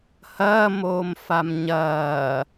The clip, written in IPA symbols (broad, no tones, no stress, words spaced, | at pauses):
hɐːmoːmfam ɲɐː